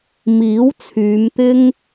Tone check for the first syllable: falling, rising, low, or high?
rising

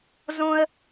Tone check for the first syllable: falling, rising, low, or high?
high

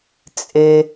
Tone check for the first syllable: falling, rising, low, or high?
low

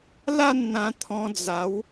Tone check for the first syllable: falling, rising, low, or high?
falling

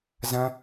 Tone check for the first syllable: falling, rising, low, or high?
high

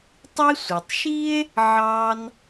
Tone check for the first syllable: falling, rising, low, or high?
high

